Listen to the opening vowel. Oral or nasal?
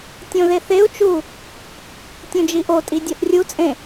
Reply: nasal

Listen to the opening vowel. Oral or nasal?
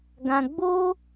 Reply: nasal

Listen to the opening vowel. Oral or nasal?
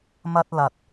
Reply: oral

